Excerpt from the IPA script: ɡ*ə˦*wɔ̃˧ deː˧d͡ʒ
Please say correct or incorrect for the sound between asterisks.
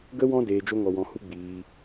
incorrect